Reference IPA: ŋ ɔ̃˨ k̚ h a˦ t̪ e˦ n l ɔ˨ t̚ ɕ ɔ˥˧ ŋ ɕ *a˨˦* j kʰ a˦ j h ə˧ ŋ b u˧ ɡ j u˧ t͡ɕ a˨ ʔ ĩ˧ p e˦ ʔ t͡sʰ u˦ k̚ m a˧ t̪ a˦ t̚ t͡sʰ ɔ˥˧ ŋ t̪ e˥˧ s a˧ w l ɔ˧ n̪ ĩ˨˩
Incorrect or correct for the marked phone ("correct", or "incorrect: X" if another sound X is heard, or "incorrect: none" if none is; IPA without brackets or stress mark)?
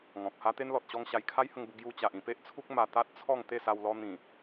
incorrect: a˧